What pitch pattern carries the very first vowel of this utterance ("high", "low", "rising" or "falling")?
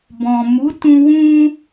low